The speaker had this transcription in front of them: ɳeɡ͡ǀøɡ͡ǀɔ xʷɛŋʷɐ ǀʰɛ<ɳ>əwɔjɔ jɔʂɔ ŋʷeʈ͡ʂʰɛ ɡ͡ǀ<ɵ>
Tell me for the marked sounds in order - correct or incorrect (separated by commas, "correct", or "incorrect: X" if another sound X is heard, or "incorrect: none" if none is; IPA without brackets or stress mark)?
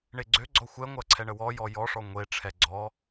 correct, incorrect: ɔ